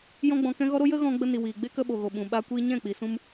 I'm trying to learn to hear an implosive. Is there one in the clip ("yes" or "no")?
yes